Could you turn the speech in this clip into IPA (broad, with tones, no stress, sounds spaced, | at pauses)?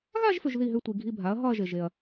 ɣ a˥˧ ʒ f ʏ˨ ʒ ð i˥˩ ɦ ʏ˥˧ tʷ i˨ ɡʱ i˧˥˧ bʱ a˩˥ ɐ̯ ɦ ɒ˥˧ ɐ̯ ʒ e˨ ʒ e˨ ɐ̯